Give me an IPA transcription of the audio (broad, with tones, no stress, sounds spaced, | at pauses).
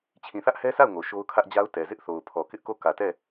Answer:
t͡ɕʰ ĩ˨ θ ä˦ ʔ h ɛ˦ s a˦˨ ʊ̯ ŋ o˨ ʃ o˦ ʊ̯ kʰ ä˦ ʔ d͡ʑ a˦ ʊ̯ t ɛ˨ z ɪ˦ ʔ θ o˨ ʊ̯ pʰ ɔ˨ k ɪ˦ ʔ k o˦˨ k ä˨ t ɛ˦˨